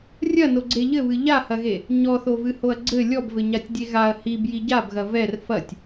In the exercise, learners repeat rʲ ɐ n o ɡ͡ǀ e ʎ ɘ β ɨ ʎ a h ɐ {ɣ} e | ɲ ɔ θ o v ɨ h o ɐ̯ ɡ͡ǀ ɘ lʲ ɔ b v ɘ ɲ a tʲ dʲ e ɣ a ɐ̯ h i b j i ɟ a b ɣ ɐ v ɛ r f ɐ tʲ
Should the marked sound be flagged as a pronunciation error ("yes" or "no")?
no